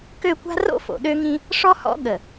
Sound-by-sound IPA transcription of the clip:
k ø˦˨ kʷ a̤˦ r o̰˦ f o̰˨ ɗ ø˦ ŋ ĩ˦ | ʂ ɔ˦ h ɔ̰˦ ɠ ə˨

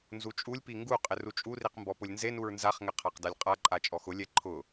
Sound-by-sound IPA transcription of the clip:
n z u t͡ʃʼ u lʲ p i ŋ ɡ u qʼ ɪ r u t͡ʃʼ u r i q m b ɔ p ʊ lʲ n z e n u ɹ n z a χ ŋ ɪ qʰ a q d a lʲ qʼ a ǃʼ a t͡ʃʼ ɔ x ʊ lʲ ɛ ǃʰ ʊ

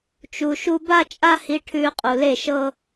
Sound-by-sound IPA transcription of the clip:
t͡ʃ u˨ ʃ u˧ b a˦ t͡ʃʼ a˦ h i˧ ʈʰ ʉː˧ qʼ u˨ l e˦˨ ʃ ɤ˦

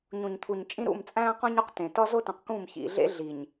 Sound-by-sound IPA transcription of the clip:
ɲ ũ˨ ɲ t̪ʰ u˨ ɲ t͡ʃʼ ĩ˦ ɾ ṵ˦˨ m t͡sʼ æ̃ː˦ q õ˦ ɲ u˦ q t ẽ˨ t ɒ˦ z o˦ t õ˨ q k ũː˦˨ m ç ḭ˨ ɮ ḛ˦ ɮ i˨ ɲ

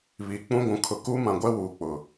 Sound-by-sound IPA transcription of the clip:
β iː˨ k͡p ũ˦ ɡʷ ũ˨ kʰ ʊ˨ k uː˦ m ã˨ ɡʷ ɛ˦ w uː˨ k͡p ʊ˨

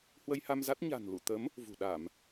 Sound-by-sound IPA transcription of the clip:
h w ə˧ j h a˧ m z a˦˥ t̚ ɲ a̤˨˩ n l ṵ˧˨ t̪ ə˨˦ m | v ṳ˨˩ ɗ a˧˩˨ m

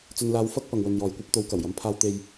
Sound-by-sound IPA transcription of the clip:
t͡s ɵ˧ n l aː˧ w f ɐ˥ k̚ p ɐ˨ ŋ w ɵ˨ n j ɔː˨ j kʷ ɐ˥ p̚ t̪ o˨˧ w k ɐ˨˩ w j ɐ˨˧ m pʰ aː˧ w t̪ e˨ j

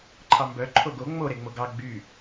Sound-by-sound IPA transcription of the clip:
ǃʰ ɑ m b œ ǃʰ o ɡ o ŋ͡m o ɾ e ŋ͡m o ɡ ɑ ɡ͡b y

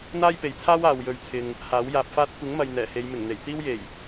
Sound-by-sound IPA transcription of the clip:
n̪ aː˥ j p e˨ j t͡sʰ aː˥ w aː˨ w j ɵ˨˧ ɥ t͡sʰ ɪ˨ ŋ | h aː˨˥ w j aː˧ p̚ f aː˥ t̚ kʷ ɪ˨˥ ŋ m ɐ˨ j n̪ ɛː˨˩ h e˨˧ j m ɪ˨˩ ŋ n̪ e˨˩ j t͡s iː˥ w j e˨˩ j

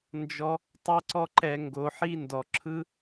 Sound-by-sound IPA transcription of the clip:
n d͡ʒ ɔ˧ | tˤ ɤ˦ ǀ ɔ˦ ǃ ɛ˧ ŋ ɡ o˧ ħ i˦ n d ɔ˨ ǁʰ ɯ˧

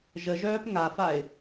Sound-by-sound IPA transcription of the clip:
ʒ ə ʒ œː p ŋ a f a ɪ̯

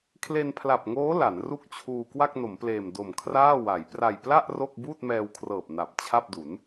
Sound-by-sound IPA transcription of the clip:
kʰ l e˧ n pʰ l a˨˩ p̚ ŋ oː˦˥ l a˩˦ n r u˥˩ k̚ t͡ɕʰ uː˧ k w a˥˩ k̚ n o˩˦ m p l eː˨˩ m d o˨˩ m kʰ r aː˥˩ w a˩˦ j p r a˨˩ j p l a˥˩ ʔ r o˥˩ k̚ b uː˥˩ t̚ m ɛː˧ w kʰ r ɤː˨˩ p̚ n a˨˩ p̚ t͡ɕʰ a˥˩ p̚ d u˩˦ n

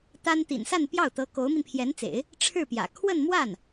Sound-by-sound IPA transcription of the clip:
t̪ a˥ n t̪ ḭ˨˩ n s a˥˧ n p j ɑ˥˩ ʊ̯ t̪ ɤ˧˥ k o˧˥ ʊ̯ m i˧ n pʰ j ɛ˧˥ n t͡s ḛ˨˩˦ ɪ̯ | ʈ͡ʂʰ ɻ̩˥˩ p j ä̰˨˩ kʰ w ə˥˧ n m w a˥˩ n

